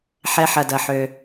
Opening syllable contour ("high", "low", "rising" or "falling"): high